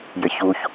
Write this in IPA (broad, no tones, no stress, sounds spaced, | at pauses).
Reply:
j ɘ ç u ç